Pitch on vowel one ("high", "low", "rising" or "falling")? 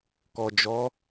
low